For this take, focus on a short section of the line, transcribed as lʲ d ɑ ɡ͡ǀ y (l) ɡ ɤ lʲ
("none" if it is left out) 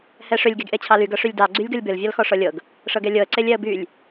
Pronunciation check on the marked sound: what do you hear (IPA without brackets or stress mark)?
lʲ